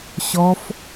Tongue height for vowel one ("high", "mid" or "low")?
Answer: mid